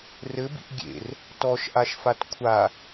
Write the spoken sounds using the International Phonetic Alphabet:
rɘbḭʔ ɡʲḛr | tɔʃʔaʃfat kʷʰa

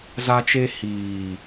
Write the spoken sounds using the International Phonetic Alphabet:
za˧t͡ʃe˧ hiː˨

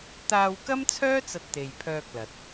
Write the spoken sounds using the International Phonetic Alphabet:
t̪aː˧wkɐ˥mt͡sʰœː˥ t͡sɐ˧t̚t̪e˨j pʰœː˧k̚lɐ˨t̚

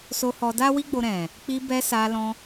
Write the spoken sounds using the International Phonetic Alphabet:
so˧ hɔ˧da˦ wi˦ɡ͡bo˧ɾɛ̃˨ | k͡pi˧bɛ˧ sa˧lɔ̃˧

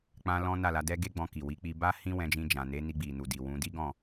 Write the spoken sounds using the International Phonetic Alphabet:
k͡pã˦ lɔ̃˦na˦˨la˨˦dɛ˦ ɡe˦ɡ͡bɔ̃˧ki˨wi˨˦ k͡pi˧ba˦ hĩ˦wɛ̃˧d͡ʒĩ˧ d͡ʒã˨ne˨˦ ni˧ɡ͡bi˨nu˨ di˨wũ˨˦ di˦ɡɔ̃˦˨

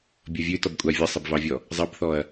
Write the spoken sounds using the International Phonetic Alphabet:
bʲʌvʲʉtɔbkʷʼa vʲʌsˤʌbvɑvʲɔ | zˤʌbθɔɐ̯

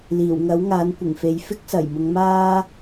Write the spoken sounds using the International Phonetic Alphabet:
liː˨˩wŋɐ˨˥wŋaː˨˧n kʷɪ˨˩ŋfe˨˧j fɪ˥k̚sɐ˨˩jmʊ˨˧ŋmaː˥

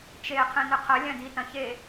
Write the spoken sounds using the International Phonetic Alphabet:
t͡ʃe qʰẽnɨqʰɐ lʲɐ̃di tɐ̃çe

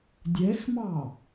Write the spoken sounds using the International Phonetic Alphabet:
dʲɛxmɑ

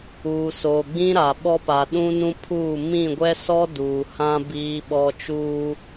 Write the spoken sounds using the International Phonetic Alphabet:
uː˨soː˨ ɡ͡bĩ˦ɾa˨ɓɔ˦pa˨ ɗũ˦nũ˦pʰuː˦˨ mĩ˦˨ɡʷɛ˦sɔ˦ duː˨hã˦ biː˦ɓɔ˦ t͡ʃuː˦

